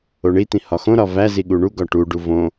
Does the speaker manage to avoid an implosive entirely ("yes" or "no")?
no